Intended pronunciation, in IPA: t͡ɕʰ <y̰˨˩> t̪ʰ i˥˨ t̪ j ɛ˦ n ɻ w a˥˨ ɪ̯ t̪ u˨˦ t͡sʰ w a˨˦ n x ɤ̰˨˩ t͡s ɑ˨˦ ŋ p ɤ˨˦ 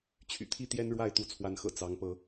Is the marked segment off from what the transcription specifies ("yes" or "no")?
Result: no